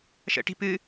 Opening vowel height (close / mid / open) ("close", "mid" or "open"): mid